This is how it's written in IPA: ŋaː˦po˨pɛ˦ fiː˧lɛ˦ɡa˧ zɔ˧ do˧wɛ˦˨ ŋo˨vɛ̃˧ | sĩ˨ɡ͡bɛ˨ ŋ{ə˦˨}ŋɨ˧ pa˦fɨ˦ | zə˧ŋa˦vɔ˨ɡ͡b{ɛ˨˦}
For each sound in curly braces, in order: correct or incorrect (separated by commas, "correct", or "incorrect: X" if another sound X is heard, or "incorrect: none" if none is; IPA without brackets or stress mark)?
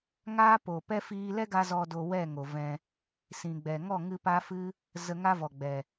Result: incorrect: ɔ˦˨, incorrect: ɛ˨